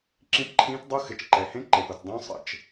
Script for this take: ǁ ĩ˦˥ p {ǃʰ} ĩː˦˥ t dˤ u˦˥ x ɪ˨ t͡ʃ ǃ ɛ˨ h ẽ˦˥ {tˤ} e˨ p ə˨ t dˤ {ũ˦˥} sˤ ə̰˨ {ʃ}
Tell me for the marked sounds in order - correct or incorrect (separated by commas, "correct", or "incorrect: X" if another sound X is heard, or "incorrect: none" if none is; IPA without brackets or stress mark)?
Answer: correct, incorrect: ǃ, correct, incorrect: t͡ʃ